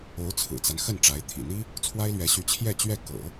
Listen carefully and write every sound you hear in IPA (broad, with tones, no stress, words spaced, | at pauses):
o˧˥ʊ̯t͡sʰɹ̩˨˩t͡sa˦n xə˥˩nʈ͡ʂa˧˥ɪ̯ t̪ʰḭ˨˩n̪i˥ | t͡sʰwa˥ɪ̯lɥɛ˧˥ɕy˧˥ t͡ɕʰjɛ˥˧t͡ɕɥɛ˥˩ kɤ̰˨˩˦